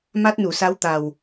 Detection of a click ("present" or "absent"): absent